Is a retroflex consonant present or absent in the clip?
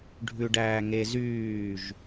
present